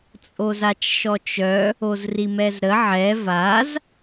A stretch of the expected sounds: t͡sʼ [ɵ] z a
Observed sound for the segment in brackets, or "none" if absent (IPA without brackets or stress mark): o